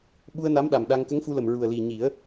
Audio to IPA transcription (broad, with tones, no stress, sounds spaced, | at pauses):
ɓ u˧ ə̯ n a˧˥ m ɗ a˨˩ m ɗ a˧ ŋ k ə˧˥ ŋ f u˧ l ə˨˩ m ɹ u˨˩ ə̯ l i˨˩ ɲ i˨˩˦ ə̯